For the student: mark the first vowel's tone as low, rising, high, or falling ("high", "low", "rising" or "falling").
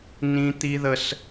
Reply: high